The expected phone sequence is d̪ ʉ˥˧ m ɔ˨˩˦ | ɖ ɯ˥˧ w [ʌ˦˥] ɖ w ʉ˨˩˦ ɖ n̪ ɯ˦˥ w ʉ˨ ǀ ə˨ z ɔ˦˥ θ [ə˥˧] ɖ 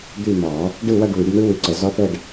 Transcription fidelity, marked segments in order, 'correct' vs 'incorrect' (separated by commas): incorrect, correct